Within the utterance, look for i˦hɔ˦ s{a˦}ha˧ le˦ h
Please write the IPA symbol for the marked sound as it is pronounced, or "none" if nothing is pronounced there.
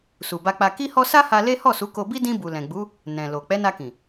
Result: a˦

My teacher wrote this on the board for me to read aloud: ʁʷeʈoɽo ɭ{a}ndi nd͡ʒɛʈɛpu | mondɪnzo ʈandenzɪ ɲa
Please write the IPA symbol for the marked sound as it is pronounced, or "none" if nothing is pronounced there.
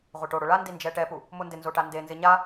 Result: a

